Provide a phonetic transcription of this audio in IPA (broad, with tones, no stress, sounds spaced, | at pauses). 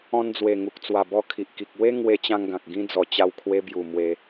ɔ̃˧ n d͡z w e˨˩ ŋ u˨ k̚ t͡s w a˨˩ b ɔ˧ kʰ i˨ ʔ k i˨ k̚ w e˦ ŋ w e˧ t͡ɕ ã˧ ŋ ɡ ã˨ k̚ ɡ ĩ˧ d͡z ɔ˨˩ t͡ɕ a˧ w kʰ w e˧ b j u˨˩ m w e˧